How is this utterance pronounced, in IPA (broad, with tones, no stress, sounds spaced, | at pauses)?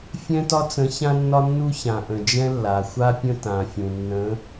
fʲ ɛ̃˦ t ɒ˦ t͡s ə̃˨˦ ç ã˦ nː ɒ˦ nː u˦ ç ã˩ ʔ ə̃˩ d͡ʒ ɛ̃˦ lː a˩ xʷ a˦ pʲ ə̃˦ t ã˩ fʲ ũ˩ nː ə̃˨˦